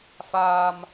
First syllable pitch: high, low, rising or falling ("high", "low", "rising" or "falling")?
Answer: high